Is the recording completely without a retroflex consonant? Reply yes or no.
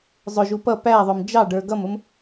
no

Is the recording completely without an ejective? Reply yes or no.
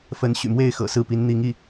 yes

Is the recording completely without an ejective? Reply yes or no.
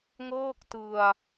yes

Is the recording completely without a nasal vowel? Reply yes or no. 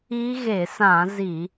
no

